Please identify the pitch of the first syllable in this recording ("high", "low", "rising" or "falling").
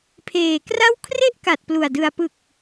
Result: low